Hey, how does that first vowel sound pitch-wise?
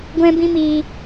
high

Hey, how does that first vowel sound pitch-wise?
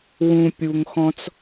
low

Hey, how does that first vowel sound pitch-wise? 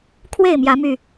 falling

